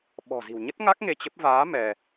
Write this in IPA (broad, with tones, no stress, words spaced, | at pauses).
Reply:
ɓɔ̤˨˩zi̤˨˩wɲə˦˥t̚ŋa˦˥k̚ ŋe˧t͡ɕə˦˥p̚ vaː˨˦ mɛ˧